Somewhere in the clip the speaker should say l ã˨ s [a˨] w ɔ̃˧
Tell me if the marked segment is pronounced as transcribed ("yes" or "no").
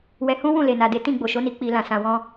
no